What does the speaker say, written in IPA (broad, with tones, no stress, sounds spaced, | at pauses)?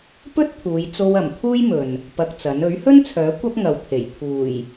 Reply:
p ɵ˥ t̚ t̪ʰ uː˨˧ j t͡s o˧ w ɐ˨˩ m t̪ʰ uː˥ j m ɵ˨ n | p ɐ˧ k̚ t͡s ɐ˨˥ n ɵ˨˥ ɥ h ɵ˥ n t͡sʰ œː˨˥ kʷ ɐ˥ p̚ ŋ ɐ˨ w t̪ʰ e˨˩ j t̪ʰ uː˨˩ j